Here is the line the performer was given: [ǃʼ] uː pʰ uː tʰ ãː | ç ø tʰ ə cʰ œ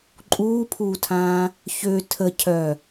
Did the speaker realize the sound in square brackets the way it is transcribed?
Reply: yes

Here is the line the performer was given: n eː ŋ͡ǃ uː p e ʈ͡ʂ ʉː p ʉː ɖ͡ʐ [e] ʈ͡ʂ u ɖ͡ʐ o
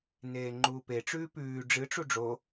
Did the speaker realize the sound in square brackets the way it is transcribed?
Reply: no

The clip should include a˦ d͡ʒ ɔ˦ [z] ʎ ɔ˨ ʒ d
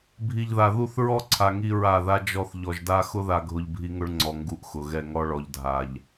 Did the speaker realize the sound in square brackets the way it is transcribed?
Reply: no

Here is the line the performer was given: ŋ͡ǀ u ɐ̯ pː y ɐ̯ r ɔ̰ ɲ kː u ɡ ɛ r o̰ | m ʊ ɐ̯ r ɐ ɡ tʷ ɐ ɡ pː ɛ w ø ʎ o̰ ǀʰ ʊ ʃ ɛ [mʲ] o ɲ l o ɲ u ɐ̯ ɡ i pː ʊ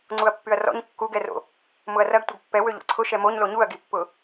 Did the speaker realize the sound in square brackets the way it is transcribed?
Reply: no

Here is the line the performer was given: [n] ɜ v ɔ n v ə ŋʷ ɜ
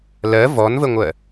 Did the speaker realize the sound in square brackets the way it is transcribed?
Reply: no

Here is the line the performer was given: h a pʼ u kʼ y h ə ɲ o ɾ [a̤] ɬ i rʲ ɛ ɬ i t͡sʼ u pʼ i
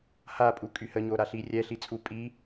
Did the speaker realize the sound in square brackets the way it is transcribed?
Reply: no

